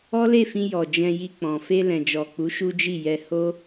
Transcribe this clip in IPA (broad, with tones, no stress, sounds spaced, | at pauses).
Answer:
ɔ˦ l e˦˨ f ĩ˧ j ɔ˨ d͡ʒ ɛ̃˧ j i˧ k͡p ɔ̃˨ f e˧ l ɛ̃˨ d͡ʒ ɔ˨ k͡p u˨˦ ʃ u˦ d͡ʒ i˦˨ j ɛ˧ h o˦